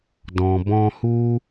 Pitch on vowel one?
low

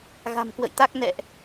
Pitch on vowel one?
low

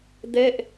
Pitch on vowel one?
falling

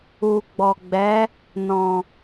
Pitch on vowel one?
low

